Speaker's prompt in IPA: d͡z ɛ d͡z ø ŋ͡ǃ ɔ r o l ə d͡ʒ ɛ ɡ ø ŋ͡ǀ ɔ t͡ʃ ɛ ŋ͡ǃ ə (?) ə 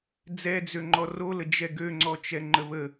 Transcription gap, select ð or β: β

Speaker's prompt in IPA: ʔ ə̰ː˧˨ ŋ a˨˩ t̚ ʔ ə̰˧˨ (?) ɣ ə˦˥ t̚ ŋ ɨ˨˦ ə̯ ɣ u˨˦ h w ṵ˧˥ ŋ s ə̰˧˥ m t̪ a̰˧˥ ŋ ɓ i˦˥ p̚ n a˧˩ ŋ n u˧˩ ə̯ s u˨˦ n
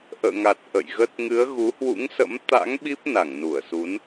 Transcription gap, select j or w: j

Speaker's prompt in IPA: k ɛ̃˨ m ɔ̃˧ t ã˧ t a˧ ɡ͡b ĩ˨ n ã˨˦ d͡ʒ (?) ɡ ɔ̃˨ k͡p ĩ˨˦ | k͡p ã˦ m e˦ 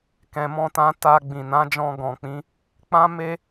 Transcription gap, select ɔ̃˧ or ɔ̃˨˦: ɔ̃˧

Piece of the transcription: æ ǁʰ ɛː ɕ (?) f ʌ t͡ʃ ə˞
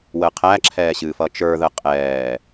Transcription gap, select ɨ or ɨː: ɨː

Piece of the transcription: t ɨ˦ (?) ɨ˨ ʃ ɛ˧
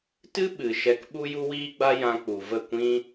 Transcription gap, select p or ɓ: ɓ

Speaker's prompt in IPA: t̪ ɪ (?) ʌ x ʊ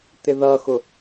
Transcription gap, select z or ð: ð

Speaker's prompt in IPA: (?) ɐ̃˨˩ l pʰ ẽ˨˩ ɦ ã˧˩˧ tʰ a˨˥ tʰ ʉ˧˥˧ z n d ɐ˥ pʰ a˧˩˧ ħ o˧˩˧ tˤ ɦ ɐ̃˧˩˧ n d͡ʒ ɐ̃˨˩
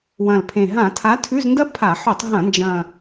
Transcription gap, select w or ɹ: w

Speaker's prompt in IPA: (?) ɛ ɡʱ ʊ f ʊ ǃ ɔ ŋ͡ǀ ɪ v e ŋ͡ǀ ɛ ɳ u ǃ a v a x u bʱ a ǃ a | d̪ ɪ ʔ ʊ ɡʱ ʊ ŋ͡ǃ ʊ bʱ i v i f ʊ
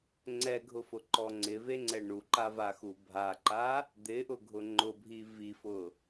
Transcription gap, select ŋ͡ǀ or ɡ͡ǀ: ŋ͡ǀ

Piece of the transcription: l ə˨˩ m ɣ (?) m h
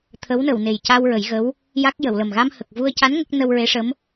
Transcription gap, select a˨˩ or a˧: a˧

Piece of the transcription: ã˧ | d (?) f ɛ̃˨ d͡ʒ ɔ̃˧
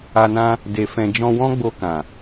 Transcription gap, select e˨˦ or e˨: e˨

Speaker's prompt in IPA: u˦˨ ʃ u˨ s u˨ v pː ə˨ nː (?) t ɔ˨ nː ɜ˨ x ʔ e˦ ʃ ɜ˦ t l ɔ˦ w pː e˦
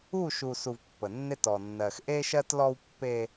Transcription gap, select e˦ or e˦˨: e˦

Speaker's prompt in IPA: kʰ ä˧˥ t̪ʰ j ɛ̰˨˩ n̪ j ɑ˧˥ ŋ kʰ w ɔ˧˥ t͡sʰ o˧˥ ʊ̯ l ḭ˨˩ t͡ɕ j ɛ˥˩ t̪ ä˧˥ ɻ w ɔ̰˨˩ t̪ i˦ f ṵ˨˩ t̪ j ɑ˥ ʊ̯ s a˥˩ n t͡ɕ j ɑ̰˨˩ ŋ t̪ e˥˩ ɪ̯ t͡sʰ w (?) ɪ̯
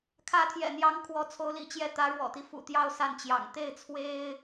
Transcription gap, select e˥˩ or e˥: e˥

